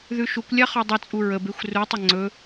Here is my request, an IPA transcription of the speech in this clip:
ð ʉ ʃ u kʷ lʲ a χ ɔ dˤ ɐ t͡sʼ u ɹ ə b e xʷ r u tˤ ə ŋ͡ǀ ɵ

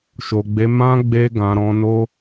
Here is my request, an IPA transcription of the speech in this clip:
ʃ o˨ ɡ͡b e˨˦ m ã˦ ɡ͡b e˧ ɡ ã˨ ɾ ɔ̃˨˦ n o˦

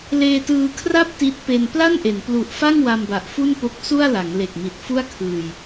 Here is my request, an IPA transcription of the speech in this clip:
l eː˧ t ɯː˧ kʰ r a˥˩ p̚ t i˦˥ t̚ p e˧ n p l a˥˩ n ʔ e˩˦ n p l u˨˩ ʔ f a˥˩ ŋ w a˧ m b a˨˩ ʔ f u˥˩ n p o˦˥ k̚ s u˥˩ a̯ l a˩˦ ŋ l e˨˩ k̚ m i˨˩ t̚ f u˥˩ a̯ kʰ ɯː˧ j

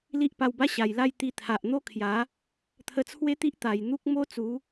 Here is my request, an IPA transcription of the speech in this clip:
l i˦ ʔ p a˧ w b a˦ ɕ a˨˩ j l a˥˧ j t̪ i˧ t̪ʰ a˨ ʔ n̪ o˦ kʰ j a˨˦ | t̪ʰ ə˧ t͡sʰ w e˦ t̪ i˦ ʔ t̪ a˨˩ j n̪ u˦ k̚ m o˦ t͡s u˨˦

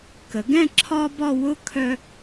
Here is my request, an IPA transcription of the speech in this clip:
k ə˩˧ ɡ ɛ̃˥˧ ǁʰ ɒ˥ b ɒ˥˧ w ʊ˥ kʰ œ˧

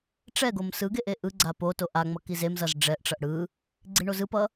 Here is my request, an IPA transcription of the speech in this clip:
ʈ͡ʂ ɛ ɡ o m s ɯ ɡ e ʔ e ʔ ɯ ɡ͡ǀ a p o t o ʔ a ŋ͡m ʌ k i z e m z ʌ z ɖ͡ʐ ɛ ʔ ʈ͡ʂ ʌ ʔ ɽ ɯ | ɡ͡ǀ i ɳ o z ɯ p ʌ

